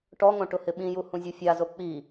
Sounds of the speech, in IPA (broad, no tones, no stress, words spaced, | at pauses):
ʈɔŋõ ʈʊhɪɓĩju hũzʲufʲazo k͡pi